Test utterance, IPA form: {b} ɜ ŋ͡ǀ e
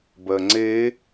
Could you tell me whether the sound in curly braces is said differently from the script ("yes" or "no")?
no